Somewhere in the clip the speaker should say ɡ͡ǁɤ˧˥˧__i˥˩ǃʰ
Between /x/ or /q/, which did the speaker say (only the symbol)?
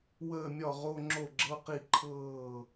q